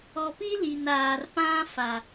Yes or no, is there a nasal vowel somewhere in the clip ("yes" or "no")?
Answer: yes